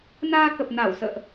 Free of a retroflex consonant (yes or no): yes